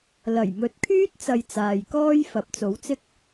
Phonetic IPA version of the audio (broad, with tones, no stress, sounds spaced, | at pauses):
l ɐ˨˩ j m ɵ˨˥ t̚ kʰ yː˥ t̚ t͡s ɐ˧ j t͡s aː˨ j k ɔː˥ j f ɐ˨˥ p̚ t͡s o˨˥ w t͡s ɪ˥ k̚